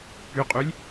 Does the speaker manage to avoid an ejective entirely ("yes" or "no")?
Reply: no